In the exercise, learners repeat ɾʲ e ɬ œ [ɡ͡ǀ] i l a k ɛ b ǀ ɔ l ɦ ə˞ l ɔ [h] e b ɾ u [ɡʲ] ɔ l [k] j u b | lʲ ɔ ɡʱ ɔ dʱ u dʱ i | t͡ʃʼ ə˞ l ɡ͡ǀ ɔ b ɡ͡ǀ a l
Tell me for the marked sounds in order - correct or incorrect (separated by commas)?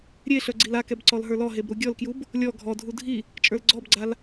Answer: correct, incorrect, correct, correct